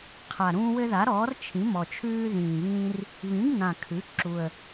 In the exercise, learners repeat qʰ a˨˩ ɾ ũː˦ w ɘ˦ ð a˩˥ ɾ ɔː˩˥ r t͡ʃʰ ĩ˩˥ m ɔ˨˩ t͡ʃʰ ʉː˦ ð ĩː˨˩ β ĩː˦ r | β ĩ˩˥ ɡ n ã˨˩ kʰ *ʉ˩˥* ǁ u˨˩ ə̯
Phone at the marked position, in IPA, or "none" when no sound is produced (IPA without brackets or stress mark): ʉ˩˥